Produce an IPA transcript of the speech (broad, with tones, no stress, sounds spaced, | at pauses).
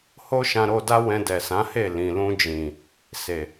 h o˦ ʃ ã˧ ɾ o˧ d a˦ w ɛ̃˧ d ɛ˨ s ã˨˦ h e˦˨ l ĩ˨ l ũ˧ d͡ʒ ĩ˨ | s e˨